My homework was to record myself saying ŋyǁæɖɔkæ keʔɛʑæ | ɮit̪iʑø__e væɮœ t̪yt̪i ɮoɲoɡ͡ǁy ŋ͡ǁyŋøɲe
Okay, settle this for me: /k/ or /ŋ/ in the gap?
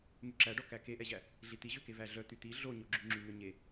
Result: k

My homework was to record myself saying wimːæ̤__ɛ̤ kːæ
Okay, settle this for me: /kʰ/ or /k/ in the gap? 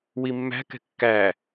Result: k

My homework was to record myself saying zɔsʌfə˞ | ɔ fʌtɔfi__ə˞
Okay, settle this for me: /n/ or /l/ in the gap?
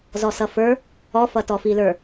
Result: l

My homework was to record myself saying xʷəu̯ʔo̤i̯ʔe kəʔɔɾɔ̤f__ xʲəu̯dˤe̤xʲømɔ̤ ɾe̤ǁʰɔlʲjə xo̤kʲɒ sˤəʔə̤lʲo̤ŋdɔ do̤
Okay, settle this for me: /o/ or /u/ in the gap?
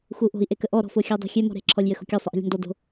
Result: o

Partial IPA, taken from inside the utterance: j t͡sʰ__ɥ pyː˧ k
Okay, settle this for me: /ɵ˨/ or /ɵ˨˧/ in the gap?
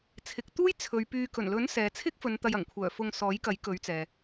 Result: ɵ˨˧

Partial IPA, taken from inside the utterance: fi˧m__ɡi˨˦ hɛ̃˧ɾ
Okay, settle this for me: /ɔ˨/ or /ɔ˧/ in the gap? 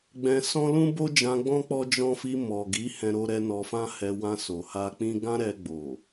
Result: ɔ˨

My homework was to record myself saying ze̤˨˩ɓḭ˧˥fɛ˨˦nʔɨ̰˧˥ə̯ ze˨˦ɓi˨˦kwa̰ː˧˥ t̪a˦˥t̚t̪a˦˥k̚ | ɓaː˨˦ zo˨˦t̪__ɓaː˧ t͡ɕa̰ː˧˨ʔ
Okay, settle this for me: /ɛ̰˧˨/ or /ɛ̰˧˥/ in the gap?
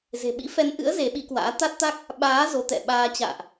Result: ɛ̰˧˨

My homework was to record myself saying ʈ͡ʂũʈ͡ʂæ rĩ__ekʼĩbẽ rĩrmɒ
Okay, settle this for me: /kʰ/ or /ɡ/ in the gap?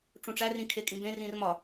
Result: kʰ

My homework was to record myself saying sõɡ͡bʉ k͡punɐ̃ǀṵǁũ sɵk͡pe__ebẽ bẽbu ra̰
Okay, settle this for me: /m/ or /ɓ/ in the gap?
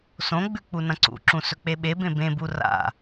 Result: ɓ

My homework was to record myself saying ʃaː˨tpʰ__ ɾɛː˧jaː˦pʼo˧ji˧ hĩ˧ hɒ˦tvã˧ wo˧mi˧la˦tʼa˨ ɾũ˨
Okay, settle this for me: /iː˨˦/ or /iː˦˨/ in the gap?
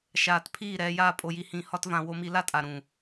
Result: iː˦˨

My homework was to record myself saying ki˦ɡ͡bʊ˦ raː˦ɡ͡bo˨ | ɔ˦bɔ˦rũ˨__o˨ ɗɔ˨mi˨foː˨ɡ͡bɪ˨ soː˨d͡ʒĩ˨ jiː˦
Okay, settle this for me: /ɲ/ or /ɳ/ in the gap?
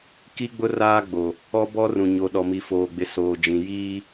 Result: ɲ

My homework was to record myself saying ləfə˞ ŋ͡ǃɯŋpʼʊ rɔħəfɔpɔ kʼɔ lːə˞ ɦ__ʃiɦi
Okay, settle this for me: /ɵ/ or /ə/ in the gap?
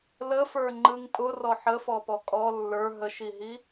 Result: ə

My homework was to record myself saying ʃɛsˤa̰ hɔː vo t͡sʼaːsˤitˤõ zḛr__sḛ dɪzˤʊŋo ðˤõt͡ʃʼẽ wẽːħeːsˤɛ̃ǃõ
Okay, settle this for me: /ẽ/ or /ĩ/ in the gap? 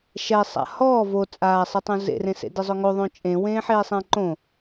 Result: ẽ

